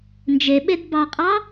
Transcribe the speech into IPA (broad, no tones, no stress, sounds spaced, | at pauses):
n d͡ʒ e ɓ e d b ɑ qʼ ɑ